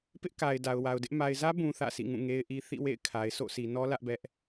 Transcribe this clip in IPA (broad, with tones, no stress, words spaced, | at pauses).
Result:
pɪ˦ʔka˨ɪ̯ da˨ʊ̯wa˨ʊ̯dɪ˦ʔ ma˨ɪ̯zä˦ bũ˦θä̰˦˨sḭ˦˨ŋũ˦˨ ŋe˦ɪ̯ʔi˦ θḭ˦˨wḛ˦˨ɪ̯kʰa˨ɪ̯ sʰo̰˦˨sʰi˨nɔ˦ lä˦ʔbɛ˦ʔ